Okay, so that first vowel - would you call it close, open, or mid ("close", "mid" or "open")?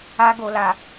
open